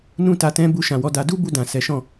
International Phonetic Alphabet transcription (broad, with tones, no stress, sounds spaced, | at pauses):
n ũ˦ t a˧ t ɛ̃˦ b u˧ ʃ ã˨ w ɔ˨˦ d a˧ d u˦ b u˧ d ã˨ s ɛ˨˦ ʃ ɔ̃˦˨